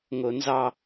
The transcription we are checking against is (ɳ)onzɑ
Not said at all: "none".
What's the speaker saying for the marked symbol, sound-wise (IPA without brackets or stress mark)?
ŋ